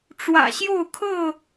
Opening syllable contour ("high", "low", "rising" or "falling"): low